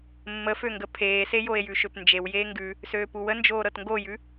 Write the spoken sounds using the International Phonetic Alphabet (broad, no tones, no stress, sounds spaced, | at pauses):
mː ə f ø ŋ ɡ ə pʰ eː s e j o e̯ j ʉ ʃ ø p n d͡ʒ e w j eː ŋ ɡ ʉ | s øː p u w ə n d͡ʒ oː ɾ ɤ t ŋ ɡ o j ʉ